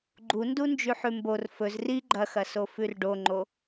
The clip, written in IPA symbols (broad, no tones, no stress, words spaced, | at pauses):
ɡ͡ǃundu nd͡ʒʉħʉmbor fɵz ri ɡ͡ǃɐxɐso fʉrɖoŋ͡ǃo